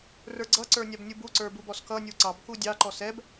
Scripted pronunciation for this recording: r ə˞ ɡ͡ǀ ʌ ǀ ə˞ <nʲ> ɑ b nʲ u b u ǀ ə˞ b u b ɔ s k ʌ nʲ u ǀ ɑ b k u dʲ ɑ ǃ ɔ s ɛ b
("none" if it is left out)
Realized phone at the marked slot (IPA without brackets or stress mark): nʲ